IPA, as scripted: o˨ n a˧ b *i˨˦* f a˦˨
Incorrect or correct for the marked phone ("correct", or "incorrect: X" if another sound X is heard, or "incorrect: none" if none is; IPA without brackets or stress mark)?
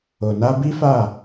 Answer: incorrect: i˦